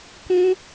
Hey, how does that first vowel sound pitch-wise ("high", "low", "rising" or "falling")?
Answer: high